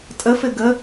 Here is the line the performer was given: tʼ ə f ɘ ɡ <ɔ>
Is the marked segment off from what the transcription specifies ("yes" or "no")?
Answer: yes